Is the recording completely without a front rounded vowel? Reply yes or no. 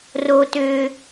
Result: no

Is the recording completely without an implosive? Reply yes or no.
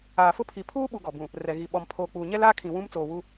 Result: no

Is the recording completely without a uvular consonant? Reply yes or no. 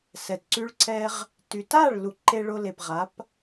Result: no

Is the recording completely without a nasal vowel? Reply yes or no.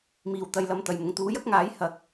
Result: yes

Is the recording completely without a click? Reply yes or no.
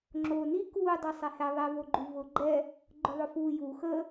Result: no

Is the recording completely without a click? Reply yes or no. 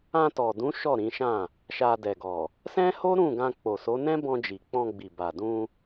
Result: yes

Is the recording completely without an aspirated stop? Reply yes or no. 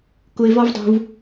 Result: yes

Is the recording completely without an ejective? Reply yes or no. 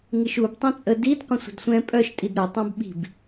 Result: no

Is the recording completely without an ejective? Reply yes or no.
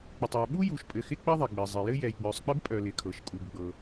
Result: no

